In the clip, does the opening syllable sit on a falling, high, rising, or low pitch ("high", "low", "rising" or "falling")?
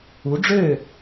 rising